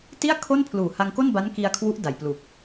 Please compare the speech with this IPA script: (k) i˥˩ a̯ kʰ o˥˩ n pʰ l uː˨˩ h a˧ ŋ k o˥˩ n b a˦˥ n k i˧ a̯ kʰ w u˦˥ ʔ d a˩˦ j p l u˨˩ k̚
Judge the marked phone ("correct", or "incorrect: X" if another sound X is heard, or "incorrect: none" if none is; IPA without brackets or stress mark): incorrect: t